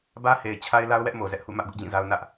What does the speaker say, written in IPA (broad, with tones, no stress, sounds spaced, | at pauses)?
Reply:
b ä˦ h e˨ ɪ̯ t͡ɕʰ a˦ ɪ̯ l a˦ ʊ̯ w ɛ˦ ʔ m o˨ z ɛ˦ ʔ h ṵ˦˨ m ä˦ ʔ ɡ ʊ˦ ʔ d͡ʑ ĩ˦˨ z a˦ ʊ̯ n ä˦ ʔ